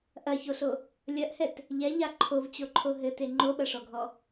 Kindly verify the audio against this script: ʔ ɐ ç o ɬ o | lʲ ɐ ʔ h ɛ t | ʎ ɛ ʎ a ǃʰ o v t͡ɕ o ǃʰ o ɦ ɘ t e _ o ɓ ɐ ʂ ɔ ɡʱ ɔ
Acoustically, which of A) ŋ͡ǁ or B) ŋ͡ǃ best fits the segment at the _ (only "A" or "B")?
B